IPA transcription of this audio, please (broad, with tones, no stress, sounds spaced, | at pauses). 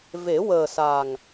v e˨˩˦ w əː˨˩ s a˨˩ ŋ